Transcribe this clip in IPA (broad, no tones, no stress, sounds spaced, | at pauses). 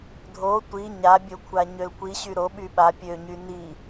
dʱ o tʷ i ɲ a bʲ o kʷʰ a ɲ ø l kʷ i ɕ y ɾ o ɓ y ɓ a pʲ ø ɲ y n i